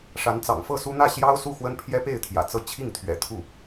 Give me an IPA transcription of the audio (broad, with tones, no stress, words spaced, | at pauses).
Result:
ʂa˧˥nt͡sɑ̰˨˩ŋfɤ˥˩su˥ n̪ä˥˩ ɕjɑ˥ʊ̯ su˥˩xwə˥n pʰjɛ˥pe˥˩ɪ̯ t̪ʰjä̰˨˩t͡sɤ˥ t͡ɕʰi˥˩ŋ t̪ʰɥɛ̰˨˩t̪ʰu˥˩